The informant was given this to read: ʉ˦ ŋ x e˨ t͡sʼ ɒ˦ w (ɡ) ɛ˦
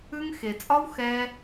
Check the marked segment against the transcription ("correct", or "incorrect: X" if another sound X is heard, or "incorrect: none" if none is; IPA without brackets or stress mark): incorrect: x